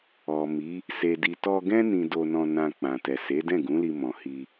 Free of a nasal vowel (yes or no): no